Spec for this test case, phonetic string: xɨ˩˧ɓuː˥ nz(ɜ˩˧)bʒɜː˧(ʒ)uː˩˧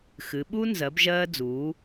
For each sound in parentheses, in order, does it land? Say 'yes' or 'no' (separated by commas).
yes, no